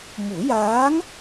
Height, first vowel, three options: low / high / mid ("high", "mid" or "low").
high